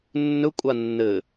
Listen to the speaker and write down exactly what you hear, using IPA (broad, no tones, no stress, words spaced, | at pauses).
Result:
nːɵ kʷʼanːɘ